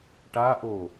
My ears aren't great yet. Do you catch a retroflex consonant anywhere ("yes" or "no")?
yes